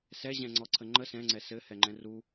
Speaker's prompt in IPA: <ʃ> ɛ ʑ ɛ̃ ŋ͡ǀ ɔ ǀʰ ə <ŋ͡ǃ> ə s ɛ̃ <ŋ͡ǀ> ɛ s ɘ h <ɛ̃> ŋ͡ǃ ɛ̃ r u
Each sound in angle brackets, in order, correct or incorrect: incorrect, correct, correct, incorrect

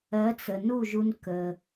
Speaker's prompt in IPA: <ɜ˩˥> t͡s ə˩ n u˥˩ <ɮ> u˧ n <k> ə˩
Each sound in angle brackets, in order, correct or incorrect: correct, incorrect, correct

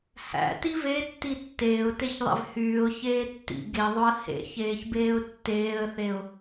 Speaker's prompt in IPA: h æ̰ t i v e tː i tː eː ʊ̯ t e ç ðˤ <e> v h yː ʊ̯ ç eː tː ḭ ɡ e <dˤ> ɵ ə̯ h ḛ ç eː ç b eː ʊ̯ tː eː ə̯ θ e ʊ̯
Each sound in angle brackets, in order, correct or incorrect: incorrect, incorrect

